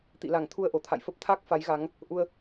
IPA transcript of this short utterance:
t̪ḭ˧˨la˧˩ŋt̪ʰu˧ə̯ ʔo˧˩t̪ʰa̰˧˨jfə˦˥p̚ t̪ʰa˦˥k̚ fa˨˦jɣa˨˦ŋ | ʔu˧ə̯

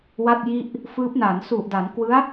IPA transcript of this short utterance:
wa˥˩t̚ji˥˩ʔ | fɯː˦˥p̚ na˩˦nsu˨˩ʔda˩˦nkwɯ˦˥a̯

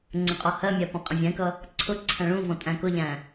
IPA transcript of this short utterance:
ŋ͡ǀə̃qʼɔhɜmʲæ pɔ̃qʼə̃vʲɛ̃kʌ | ǀʰʊ ǀʰæ̃ɭũvɔ̃ tʼæ̃kʊʎæ̃

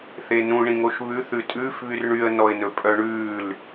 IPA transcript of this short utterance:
θenũ ɳĩŋoʃβʉ θʉtʼʉːf βyrɳyə̯ nɔɪ̯nɵpʼœɳʉːl

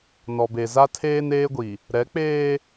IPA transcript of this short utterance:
nɔ˨be˨ za˦tʰeː˦neː˦ɡʷi˨ | ɾɛ˨˦k͡peː˦

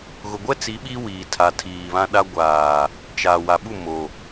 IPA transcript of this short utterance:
ɣʊ˨ɡʷɛ˦t͡si˨˦ ɓi˦wiː˨ tʰa˨ tʰiː˨βã˦ɗa˦ ɡʷaː˨ | t͡ʃa˨ wa˨ɓu˦˨ mo˨

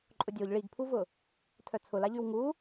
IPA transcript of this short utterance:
ǃʼʊdʲoʎ ɭiɡpʰuvʊ | tʰœt͡sʰʊlaʎyw ŋu

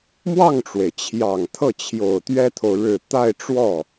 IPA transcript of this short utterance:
mwɑ˥˩ŋʈ͡ʂwe˩ɪ̯t͡ɕʰjɑ˨˩ŋ t̪ʰɤ˥˩t͡ɕʰjo˨˩ʊ̯ t̪ɥɛ˥t̪ʰo˨ʊ̯ ɻɻ̩˨˩ t̪a˥˧ɪ̯ʈ͡ʂwɔ˥˩

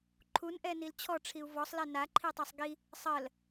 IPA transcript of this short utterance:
ǃʰunʔɛnil t͡ɕʰɔʈ͡ʂʰiu̯ vɔsˤlɛ naǃʰitˤasˤ ɡi | sˤɜl

